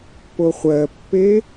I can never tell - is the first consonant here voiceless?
yes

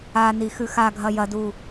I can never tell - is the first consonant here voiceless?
no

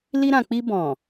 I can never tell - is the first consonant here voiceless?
no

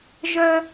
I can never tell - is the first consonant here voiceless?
no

